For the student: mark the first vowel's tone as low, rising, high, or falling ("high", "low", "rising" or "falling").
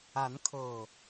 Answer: rising